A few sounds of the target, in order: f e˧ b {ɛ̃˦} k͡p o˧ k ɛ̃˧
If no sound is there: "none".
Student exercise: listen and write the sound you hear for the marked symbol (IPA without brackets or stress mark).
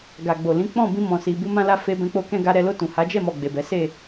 ɛ̃˧